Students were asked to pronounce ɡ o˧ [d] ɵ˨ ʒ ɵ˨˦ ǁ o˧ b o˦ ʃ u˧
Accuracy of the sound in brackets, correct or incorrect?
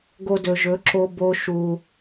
correct